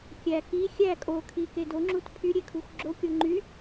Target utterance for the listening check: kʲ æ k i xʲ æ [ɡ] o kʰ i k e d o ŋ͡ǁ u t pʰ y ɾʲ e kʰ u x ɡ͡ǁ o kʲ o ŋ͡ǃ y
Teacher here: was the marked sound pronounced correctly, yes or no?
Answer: no